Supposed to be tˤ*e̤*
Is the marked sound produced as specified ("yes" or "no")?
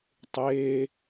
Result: no